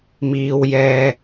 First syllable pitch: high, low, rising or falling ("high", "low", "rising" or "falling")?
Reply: low